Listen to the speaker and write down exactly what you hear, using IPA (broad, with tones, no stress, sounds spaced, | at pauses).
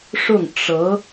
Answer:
ʂ ʊ˥˩ ŋ ʈ͡ʂ ɤ˧˥